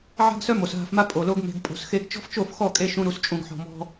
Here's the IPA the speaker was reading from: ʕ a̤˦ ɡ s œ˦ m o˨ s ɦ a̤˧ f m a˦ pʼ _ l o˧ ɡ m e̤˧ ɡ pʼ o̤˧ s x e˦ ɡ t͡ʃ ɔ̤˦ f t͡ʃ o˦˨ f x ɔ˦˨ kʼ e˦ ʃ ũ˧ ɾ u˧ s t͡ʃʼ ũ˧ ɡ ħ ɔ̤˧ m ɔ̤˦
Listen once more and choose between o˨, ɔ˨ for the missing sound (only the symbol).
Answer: o˨